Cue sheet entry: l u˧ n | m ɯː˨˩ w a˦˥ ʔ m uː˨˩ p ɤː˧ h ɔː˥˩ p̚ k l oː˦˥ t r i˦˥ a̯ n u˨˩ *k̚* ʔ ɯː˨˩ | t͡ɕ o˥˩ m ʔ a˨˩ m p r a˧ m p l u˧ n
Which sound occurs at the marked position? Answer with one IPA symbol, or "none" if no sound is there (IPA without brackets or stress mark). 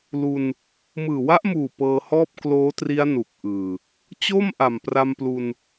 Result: k̚